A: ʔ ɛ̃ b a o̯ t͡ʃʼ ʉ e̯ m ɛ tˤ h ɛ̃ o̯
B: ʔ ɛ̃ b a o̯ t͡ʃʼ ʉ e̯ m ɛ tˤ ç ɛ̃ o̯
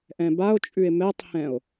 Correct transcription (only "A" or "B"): A